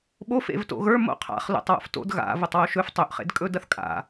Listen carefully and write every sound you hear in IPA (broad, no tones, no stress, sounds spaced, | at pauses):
ɓ o f ḛ v t o̰ ɣ ə˞ m o̰ qʰ a̰ χ l o̰ tˤ w o̰ f t o̰ d ɣ a̰ v ʊ tˤ w o ʃ ɵ f tˤ ɵ ʔ χ ḛ d kʼ ɵ d ɐ θ kʼ a̰